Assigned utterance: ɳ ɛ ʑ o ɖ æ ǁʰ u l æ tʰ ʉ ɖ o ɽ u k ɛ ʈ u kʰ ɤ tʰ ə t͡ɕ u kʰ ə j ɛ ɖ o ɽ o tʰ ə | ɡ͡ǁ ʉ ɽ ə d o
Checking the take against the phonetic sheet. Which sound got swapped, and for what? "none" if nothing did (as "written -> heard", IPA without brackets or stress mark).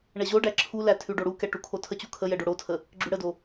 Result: ɤ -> o